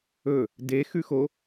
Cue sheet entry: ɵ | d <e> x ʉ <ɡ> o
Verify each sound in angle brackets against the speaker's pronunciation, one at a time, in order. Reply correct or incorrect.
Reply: correct, incorrect: x

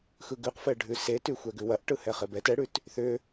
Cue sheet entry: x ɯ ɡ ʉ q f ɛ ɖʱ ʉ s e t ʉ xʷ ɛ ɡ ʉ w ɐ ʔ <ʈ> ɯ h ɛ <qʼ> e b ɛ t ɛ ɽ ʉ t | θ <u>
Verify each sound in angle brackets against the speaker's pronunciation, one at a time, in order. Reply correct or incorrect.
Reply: correct, incorrect: χ, incorrect: ʏ

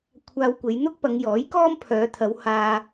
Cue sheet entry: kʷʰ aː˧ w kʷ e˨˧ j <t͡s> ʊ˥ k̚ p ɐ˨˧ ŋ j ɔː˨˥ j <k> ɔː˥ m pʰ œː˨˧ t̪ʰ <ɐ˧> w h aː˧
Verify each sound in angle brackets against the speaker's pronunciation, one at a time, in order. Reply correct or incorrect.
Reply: incorrect: n̪, correct, incorrect: ɐ˨˧

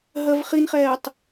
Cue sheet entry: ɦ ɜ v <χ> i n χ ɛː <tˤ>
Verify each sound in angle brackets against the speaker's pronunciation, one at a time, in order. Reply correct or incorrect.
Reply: correct, correct

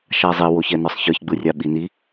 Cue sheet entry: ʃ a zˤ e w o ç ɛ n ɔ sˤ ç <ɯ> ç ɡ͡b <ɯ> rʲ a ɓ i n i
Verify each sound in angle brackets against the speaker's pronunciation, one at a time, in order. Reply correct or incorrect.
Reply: correct, correct

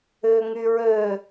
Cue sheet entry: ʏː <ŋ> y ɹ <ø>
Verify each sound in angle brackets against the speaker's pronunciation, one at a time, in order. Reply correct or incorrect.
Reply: correct, correct

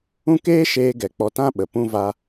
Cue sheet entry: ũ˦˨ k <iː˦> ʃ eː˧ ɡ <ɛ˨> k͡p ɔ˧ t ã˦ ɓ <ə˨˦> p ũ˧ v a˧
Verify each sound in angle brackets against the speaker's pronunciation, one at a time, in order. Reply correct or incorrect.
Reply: incorrect: eː˦, correct, incorrect: ə˨

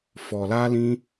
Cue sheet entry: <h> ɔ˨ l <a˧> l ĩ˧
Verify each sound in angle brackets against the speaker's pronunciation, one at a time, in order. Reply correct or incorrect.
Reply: incorrect: f, correct

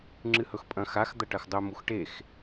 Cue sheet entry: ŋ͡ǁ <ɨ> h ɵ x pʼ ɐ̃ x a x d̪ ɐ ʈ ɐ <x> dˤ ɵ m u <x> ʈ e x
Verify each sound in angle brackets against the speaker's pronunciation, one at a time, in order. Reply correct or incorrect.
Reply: correct, correct, correct

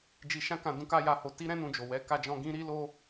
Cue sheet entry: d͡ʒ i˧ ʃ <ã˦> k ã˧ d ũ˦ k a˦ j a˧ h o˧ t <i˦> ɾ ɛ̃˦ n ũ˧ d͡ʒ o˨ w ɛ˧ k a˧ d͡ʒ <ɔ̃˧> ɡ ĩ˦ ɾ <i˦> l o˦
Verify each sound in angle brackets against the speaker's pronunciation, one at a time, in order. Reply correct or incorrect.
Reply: correct, correct, correct, correct

